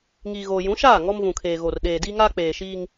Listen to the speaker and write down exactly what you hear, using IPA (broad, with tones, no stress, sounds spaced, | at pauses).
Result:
ŋ iː˨ ɣ oː˨ j ũ˨˦ ʃ aː˦˨ ŋ ɔ˦ m v ũ˨ kʰ eː˨ ɣ o˨ r ɗ eː˨ d iː˦ ŋ aː˦ k͡p eː˨ ʃ iː˦ ŋ